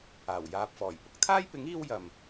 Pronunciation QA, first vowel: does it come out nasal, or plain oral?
oral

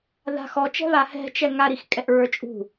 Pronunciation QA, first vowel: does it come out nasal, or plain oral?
oral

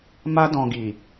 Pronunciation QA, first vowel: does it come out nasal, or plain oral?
oral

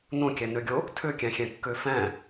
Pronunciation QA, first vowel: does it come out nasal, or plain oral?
nasal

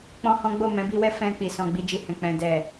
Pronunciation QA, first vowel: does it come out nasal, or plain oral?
nasal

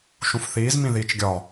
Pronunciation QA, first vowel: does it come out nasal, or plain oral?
nasal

